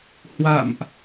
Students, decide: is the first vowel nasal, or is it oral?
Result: oral